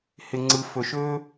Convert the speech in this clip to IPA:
h ɪ˨ ŋ͡ǀ ɯ˨ f ɵ˨ ʃ ɵː˦

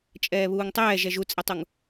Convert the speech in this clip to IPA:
t͡ʃʼ ɛː β uː ŋ tˤ ɛː ʒ ɛ ʒ u t͡sʼ ɛ tˤ u ŋ

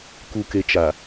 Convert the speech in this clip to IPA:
k u˨ k e˨ t͡ʃ a˨

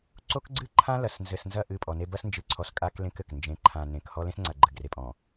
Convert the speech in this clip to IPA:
ǀ o˦ k ɡ͡ǀ ɨ˦ ǃʰ ã˦ l ɐ˨ s n z ɘ˨ s n z ɐ˦˨ ʔ ɨ˦˨ pʼ ɔ˨ n e˦ b ɐ˦ s n d͡ʒ ɨ˨ ǀʰ ɔ˨ s kʼ a˦ k l ẽ˦ k ɘ˨ k n d͡ʒ ẽ˨ ǃʰ ã˨ n ẽ˨ k h ɔ˦ l ẽ˦ s ŋ͡ǀ a˨ ɡ͡ǃ ɘ˨ ɡ r e˨ pʼ ɔ̃˨

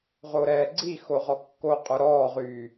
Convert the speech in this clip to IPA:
ʁ o ɾ ɛː ɡ͡ǀ i x o ʁ ɔ kː o qʼ œ ɾ ɔː ʁ yː

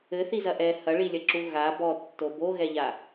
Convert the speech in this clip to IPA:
ɘ θ i z ɐ ʔ ɛ h ɐ ɭ i lʲ ɐ ǁ u ɣ a b ɔ tː o b o ɣ ɛ ʎ a

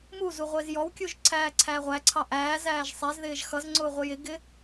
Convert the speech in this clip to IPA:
m u z u ʁʷ ɪː z j ɔ w kʲ u ʒ ǀʰ æː ǀʰ æː ʁʷ æ ǀʰ ɑ ʔ æː z æː ʒ sˤ ɛ z ð ɪː ʒ x ʌ z ŋ͡ǀ ʊː ʁʷ ɪ j ɪ ɡ ɪ

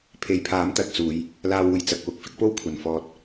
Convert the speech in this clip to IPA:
pʰ e˨ j pʰ aː˨˥ m t̪ ɐ˧ t̚ t͡s uː˨˧ j | l aː˧ w uː˨ j t͡s ɐ˨ k̚ w ʊ˨ k̚ f ɪ˥ k̚ p o˥ w kʷʰ ɐ˨˩ n f ɔː˨ t̚

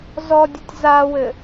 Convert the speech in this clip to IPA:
z ɔ dʲ ɔ tʲ z a w ɘ

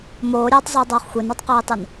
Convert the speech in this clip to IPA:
m oː ɾʲ eː tˤ zˤ uː dˤ oː χ xʷ e n u tˤ q iː tˤ i n

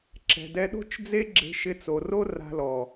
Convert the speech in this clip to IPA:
ǁ ɛ̤˨ d ɛ˧ ɗ o̤˦ t͡ʃ d͡z e˦ ɡ͡ǁ e̤˧ ʃ ɪ˧ t͡s o˨ r o˦ r a̤˧ l ɔ˨

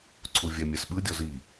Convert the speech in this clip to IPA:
ǀʰ u vʲ ɛ mʲ ɛ s ɓ ɯ dʲ ɔ z i

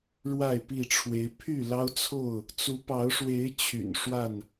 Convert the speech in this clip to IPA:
ɻ w a˥˨ ɪ̯ p i˥˨ ʈ͡ʂʰ w e˨˦ ɪ̯ pʰ y˥˨ l ɑ˦ ʊ̯ t͡sʰ o˥˨ ʊ̯ | t͡s u˨˦ p ɑ˨˦ ʊ̯ ʂ w e˨˦ ɪ̯ t͡ɕʰ y̰˨˩ n ʂ w a˥˨ n

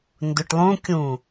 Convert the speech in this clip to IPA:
n d ʊ ʈ lˠ ũ kʲ ũ

